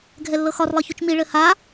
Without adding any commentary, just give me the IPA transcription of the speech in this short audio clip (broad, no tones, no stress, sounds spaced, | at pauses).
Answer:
ɡʱ ɛ lː ɤ x ɒ r lˠ ɤ ç u t͡ʃ m i ɭ ɘ h a